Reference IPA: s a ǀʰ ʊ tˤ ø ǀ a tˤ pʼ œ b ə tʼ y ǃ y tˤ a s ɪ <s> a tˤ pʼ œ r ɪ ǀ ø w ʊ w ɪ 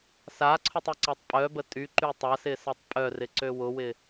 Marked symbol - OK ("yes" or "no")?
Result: yes